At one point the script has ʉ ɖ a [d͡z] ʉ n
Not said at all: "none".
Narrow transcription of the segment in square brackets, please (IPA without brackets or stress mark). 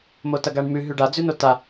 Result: d͡z